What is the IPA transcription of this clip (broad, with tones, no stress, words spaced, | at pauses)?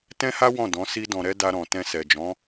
tɛ̃˦ha˦ wɔ̃˦˨dɔ̃˨˦ si˦dɔ̃˧ɾɛ˦ da˧ɾɔ̃˨ tɛ̃˧sɛ˨d͡ʒɔ̃˨˦